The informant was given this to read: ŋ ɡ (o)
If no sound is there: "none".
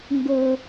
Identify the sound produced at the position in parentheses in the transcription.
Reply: o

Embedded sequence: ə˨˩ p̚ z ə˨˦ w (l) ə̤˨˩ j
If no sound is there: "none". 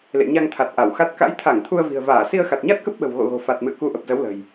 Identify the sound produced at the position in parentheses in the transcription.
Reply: l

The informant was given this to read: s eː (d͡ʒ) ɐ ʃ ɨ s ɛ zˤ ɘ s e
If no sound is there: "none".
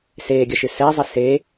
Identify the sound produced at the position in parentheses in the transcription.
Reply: ɡʲ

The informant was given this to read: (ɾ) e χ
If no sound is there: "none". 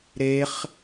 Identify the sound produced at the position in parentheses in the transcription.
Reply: ɾ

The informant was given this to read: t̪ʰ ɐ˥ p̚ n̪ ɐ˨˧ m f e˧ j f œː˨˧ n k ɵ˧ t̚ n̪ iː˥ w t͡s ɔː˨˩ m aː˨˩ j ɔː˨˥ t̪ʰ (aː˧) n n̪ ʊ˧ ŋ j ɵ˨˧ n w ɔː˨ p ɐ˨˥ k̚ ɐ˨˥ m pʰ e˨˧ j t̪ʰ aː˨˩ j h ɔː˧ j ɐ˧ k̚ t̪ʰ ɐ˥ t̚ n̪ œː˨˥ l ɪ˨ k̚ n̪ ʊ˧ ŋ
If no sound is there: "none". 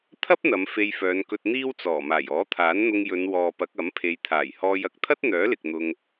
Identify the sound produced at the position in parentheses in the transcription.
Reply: aː˨˥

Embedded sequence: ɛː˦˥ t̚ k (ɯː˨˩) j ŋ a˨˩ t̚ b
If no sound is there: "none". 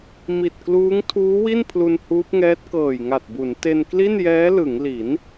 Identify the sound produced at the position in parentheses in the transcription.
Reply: ɤː˨˩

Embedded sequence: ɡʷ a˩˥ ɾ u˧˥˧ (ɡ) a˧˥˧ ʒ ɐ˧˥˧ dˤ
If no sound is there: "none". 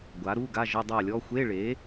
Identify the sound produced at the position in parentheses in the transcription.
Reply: ɡ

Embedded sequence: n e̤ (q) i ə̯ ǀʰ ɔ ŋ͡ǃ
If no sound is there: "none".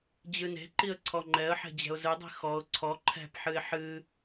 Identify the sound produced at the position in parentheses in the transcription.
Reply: ǃ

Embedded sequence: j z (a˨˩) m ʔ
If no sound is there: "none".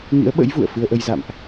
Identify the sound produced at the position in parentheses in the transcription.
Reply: a̰˧˨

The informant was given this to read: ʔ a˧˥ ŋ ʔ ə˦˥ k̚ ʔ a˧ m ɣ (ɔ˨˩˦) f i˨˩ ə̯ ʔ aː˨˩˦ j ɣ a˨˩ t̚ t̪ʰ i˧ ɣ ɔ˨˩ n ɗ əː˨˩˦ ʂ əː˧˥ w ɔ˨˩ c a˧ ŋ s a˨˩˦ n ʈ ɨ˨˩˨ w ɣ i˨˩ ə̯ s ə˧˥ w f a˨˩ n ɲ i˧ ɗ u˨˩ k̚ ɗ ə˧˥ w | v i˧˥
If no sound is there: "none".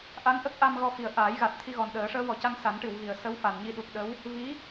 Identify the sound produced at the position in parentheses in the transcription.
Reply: ɔ˧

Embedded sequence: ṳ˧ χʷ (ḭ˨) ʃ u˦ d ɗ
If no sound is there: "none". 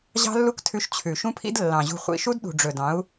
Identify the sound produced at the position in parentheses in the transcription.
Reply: ḭ˨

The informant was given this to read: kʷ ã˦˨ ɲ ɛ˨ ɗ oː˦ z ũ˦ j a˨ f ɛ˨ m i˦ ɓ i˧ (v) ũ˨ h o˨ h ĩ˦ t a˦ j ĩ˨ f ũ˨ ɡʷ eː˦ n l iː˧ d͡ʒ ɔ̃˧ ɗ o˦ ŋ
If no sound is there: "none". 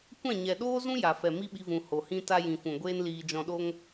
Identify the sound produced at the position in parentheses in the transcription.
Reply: v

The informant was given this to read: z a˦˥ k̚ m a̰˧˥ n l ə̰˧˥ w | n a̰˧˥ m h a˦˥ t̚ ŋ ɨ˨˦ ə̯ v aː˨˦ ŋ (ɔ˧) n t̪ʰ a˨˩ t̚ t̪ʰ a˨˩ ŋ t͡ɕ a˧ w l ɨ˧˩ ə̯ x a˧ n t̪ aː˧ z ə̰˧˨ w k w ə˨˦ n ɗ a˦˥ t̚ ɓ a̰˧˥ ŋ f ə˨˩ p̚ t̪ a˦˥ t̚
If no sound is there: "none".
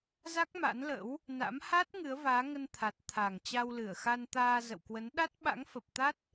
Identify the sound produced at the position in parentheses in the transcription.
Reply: ə˧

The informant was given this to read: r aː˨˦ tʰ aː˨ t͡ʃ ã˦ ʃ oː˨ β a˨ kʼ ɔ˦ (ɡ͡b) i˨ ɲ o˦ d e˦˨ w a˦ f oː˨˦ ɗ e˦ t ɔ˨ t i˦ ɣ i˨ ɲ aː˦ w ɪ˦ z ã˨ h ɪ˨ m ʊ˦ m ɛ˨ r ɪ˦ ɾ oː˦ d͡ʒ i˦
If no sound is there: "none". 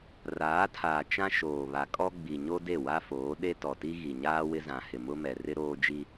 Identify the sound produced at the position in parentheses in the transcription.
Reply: ɡ͡b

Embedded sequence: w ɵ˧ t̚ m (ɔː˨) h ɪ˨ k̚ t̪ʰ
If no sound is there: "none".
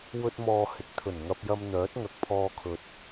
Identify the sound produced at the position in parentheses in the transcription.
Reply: ɔː˨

